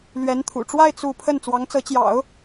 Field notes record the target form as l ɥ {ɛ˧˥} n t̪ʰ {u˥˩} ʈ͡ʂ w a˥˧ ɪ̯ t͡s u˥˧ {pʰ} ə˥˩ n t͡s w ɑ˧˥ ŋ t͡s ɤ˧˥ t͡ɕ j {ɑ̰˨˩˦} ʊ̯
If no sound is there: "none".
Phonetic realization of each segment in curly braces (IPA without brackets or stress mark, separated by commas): ɛ˧˥, ṵ˨˩, pʰ, ɑ̰˨˩˦